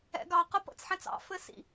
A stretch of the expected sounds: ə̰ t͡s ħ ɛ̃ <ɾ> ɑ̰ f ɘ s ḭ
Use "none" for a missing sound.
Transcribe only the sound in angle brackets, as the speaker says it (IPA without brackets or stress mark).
t͡s